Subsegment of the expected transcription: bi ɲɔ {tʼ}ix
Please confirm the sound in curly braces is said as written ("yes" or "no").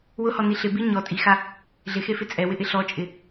yes